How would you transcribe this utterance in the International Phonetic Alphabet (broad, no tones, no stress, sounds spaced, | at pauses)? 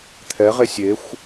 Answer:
t̪ʰ ɛ ʁ e sʲ e xʷ